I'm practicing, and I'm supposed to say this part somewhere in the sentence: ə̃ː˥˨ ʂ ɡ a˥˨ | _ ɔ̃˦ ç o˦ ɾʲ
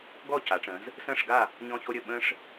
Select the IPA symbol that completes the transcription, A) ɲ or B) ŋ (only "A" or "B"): A